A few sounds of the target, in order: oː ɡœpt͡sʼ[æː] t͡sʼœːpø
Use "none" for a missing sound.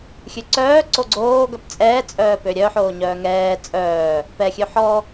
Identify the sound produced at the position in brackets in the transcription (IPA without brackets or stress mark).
ɛː